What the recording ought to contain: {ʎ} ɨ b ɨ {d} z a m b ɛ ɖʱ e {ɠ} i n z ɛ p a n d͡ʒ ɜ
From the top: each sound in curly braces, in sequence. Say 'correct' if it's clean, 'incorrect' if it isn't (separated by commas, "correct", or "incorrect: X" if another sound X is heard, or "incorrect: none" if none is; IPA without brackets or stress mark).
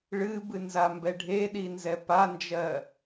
incorrect: ɭ, incorrect: n, incorrect: ɗ